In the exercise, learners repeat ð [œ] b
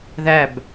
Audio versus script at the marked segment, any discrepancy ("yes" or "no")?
yes